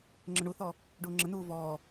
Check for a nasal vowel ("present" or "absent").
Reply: present